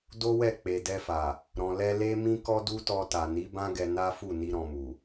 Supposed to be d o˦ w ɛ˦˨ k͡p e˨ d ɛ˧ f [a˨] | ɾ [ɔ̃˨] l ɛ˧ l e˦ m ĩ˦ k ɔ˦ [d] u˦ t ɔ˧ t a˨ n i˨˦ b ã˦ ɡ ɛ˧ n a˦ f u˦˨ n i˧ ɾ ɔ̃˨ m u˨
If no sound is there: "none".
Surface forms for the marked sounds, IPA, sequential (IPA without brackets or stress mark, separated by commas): a˨, ɔ̃˨, d